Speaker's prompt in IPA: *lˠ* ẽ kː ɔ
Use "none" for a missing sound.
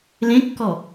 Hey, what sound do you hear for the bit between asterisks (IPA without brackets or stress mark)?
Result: l